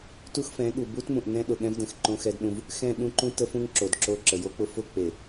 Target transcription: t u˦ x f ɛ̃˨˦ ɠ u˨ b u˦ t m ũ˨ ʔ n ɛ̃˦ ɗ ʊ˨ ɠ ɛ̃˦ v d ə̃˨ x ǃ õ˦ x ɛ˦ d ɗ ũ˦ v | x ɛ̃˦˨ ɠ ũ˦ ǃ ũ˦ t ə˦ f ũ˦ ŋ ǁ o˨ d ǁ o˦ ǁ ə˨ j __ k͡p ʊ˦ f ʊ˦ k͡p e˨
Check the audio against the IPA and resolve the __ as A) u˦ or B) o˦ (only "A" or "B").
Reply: B